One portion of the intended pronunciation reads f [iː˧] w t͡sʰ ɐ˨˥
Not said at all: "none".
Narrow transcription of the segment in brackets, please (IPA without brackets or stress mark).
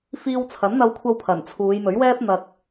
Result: iː˧